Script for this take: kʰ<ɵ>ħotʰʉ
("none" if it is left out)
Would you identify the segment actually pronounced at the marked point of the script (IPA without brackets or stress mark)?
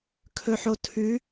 ɵ